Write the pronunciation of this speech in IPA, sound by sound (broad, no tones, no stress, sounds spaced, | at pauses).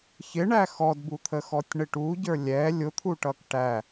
ç ɪ ɳ æ x ɔ d b u t̪ʰ ə x ɔ tʲ ɳ ɪ ʈ u ɟ ə˞ lʲ ɛ lʲ ʊ t̪ʰ u ʈ ʌ k ʈ æ